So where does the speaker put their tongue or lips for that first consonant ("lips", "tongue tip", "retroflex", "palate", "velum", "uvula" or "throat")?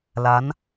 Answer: tongue tip